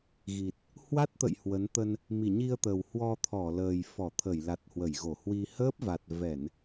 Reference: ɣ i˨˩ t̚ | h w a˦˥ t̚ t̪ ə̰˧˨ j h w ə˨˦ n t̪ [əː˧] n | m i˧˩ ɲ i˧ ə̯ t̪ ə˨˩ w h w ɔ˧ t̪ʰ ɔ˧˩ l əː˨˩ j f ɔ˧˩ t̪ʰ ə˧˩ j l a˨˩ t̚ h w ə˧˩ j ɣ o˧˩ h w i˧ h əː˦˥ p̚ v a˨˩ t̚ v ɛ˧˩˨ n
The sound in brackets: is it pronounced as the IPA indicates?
no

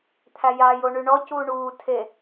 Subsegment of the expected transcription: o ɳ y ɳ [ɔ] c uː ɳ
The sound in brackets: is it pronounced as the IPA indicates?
yes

